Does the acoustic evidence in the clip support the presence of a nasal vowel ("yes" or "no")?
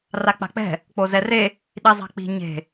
no